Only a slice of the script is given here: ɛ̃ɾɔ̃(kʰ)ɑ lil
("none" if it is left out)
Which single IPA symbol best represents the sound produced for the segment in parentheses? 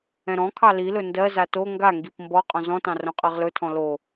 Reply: kʰ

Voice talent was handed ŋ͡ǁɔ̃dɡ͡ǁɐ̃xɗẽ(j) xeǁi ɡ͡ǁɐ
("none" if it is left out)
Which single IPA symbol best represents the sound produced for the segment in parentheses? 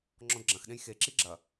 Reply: j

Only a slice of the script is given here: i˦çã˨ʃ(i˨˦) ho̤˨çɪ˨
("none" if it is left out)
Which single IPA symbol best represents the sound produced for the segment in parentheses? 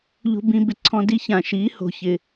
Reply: i˨˦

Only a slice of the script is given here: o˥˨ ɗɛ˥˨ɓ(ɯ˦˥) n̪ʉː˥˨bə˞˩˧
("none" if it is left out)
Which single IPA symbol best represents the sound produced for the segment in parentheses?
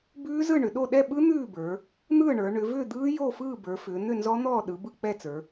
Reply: ɯ˦˥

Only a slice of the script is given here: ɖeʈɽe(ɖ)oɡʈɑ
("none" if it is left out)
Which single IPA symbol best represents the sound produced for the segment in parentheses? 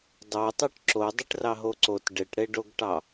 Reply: ɖ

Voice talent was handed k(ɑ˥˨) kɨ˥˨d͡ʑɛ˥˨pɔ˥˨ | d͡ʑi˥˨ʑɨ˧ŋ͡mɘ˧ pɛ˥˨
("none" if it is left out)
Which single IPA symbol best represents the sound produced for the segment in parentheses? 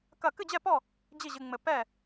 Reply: ɐ˥˨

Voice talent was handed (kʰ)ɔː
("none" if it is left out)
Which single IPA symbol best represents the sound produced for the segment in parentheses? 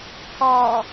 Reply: kʰ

